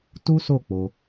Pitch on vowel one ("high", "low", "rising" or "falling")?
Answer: high